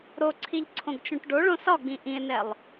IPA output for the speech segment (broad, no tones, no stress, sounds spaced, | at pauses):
ɾ o ǀʰ i ʎ ǀʰ õ ɡ t͡ʃ õ ʈ ɖ o ɭ õ s ɒ ɡ͡b ĩ ʔ ĩ e̯ n ɛ lˠ